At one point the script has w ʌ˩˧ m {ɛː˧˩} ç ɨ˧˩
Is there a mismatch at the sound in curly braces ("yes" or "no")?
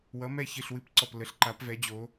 yes